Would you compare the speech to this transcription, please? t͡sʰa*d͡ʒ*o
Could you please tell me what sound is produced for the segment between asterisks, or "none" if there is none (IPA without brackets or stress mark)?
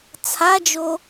d͡ʒ